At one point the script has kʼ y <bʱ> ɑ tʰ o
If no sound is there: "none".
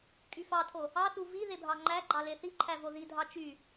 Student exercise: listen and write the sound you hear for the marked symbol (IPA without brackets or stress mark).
f